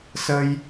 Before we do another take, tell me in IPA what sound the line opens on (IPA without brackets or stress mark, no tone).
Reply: s